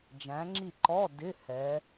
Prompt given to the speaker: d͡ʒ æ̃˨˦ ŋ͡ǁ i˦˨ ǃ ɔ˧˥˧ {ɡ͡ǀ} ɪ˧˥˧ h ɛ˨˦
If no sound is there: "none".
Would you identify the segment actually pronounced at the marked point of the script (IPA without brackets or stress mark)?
d